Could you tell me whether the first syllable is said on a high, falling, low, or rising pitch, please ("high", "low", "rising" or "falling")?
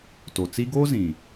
low